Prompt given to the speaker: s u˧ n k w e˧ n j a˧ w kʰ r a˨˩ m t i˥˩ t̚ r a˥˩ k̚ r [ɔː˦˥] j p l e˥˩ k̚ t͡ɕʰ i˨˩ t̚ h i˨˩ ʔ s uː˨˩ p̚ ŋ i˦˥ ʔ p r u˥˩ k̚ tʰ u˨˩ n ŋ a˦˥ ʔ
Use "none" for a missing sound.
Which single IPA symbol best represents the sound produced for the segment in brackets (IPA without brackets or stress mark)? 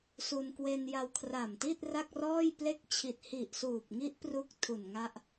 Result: ɔː˥˩